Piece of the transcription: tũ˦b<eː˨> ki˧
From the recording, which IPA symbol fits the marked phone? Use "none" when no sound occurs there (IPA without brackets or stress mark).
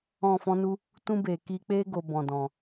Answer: eː˨